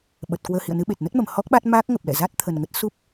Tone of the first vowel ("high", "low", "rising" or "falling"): low